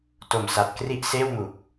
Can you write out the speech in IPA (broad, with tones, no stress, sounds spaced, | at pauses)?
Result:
t o˨˩ m s a˨˩ t̚ k r i˦˥ ʔ s eː˥˩ w m u˨˩ k̚